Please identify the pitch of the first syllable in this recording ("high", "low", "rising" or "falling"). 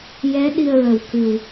rising